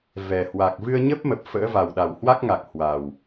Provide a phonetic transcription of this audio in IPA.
v ɛ˨˩ h w a˨˩ k̚ v ɨ˧ ə̯ ɲ ə˦˥ p̚ m ə˨˩ p̚ f ə̰ː˧˥ v a˨˩ w ɗ a˨˩ w h w a˦˥ k̚ ŋ a˨˩ k̚ h w a˨˩ w

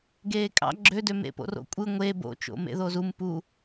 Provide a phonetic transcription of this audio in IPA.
ɡ eː kʼ ɑ̰ ɡ͡ǁ ø d ø m ḛ p o̰ r o̰ kʷʼ ɯ ŋʷ e b o̰ t͡ʃ o̰ m ḛ ð o z u m p u

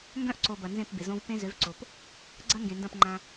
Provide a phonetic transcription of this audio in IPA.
ŋ ɡ œ̃˦ ʔ ǀ o˨ b ɐ˨ n z ẽ˦˨ p b ɪ˨ z õ˦ v p ẽ˦ z ø˨˦ v ǀ o˨ p | ɡ͡ǀ ɐ˦ ŋ ɡ ẽ˨ n d ɐ̃˦˨ p ŋ͡ǃ ã˦

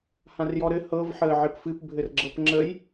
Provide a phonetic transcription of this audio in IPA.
h ã r j ɔ ɾ ɘ h ɤ v ħ əː ʕ ɘ p f ɨ p bʱ ɘ r ɡ͡ǁ ɤ p ŋ͡ǁ ə j

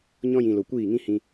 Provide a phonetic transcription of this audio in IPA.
ɲ ɔ̃˧ j ĩ˨ l o˨ kʷ iː˦˨ ŋ ĩ˦ h ĩ˧

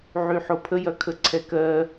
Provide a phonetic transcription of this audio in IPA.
ʕ y ħ o pʰ ə j ɐ kʰ ə ǀʰ ɛ k ɜ

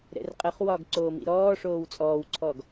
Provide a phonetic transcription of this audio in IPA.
ɾ ɛ̰ r qʼ ə χ w ɒ ɡ ǀ oː m ḭ ɾ ɔː ʂ oː w t͡sʼ ɔː w ǀʰ ɔ ɡ

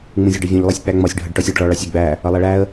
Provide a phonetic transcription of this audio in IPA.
ŋ͡m ũ zʲ ɜ ɖ ʌ vʲ ũ ʎ lˠ ɛ sʲ k͡p æ ŋ͡m ɒ sʲ ɖʱ ʌ ɖ ʈ ɔ sʲ ɑ ɖ ɭ ɔ ɭ ɑ sʲ ə ɡ͡b æ | ʌ lˠ ɛ ɭ æ ə̯

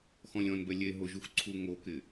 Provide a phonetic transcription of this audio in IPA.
x ɔ̃ lʲ ɔ̃ n b ɛ lʲ e ɦ ʊ ʒ u x ǀʰ u ŋ o k ɪ

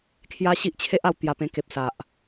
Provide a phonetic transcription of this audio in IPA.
kʰ j a˦ ɕ i˦ ʔ t͡ɕʰ e˦ ʔ a˧ w t̪ j a˧ p ẽ˧ k e˨ p̚ s a˨ ʔ

